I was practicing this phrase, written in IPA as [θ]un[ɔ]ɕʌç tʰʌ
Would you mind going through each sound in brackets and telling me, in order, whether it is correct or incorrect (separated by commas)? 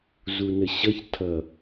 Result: incorrect, incorrect